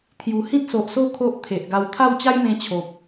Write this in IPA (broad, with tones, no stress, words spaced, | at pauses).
t̪ʰju˨˩hĩ˦t̚so˨ʔso˥˧ kʰo˦ʔt̪ʰe˨ʔɡa˧w t̪ʰa˥˧wt͡ɕa˦jmẽ˧ t͡ɕʰo˨p̚